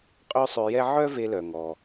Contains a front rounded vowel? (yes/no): yes